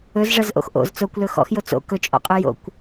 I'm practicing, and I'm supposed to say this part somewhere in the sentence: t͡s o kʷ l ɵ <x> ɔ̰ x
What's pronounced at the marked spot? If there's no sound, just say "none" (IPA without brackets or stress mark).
x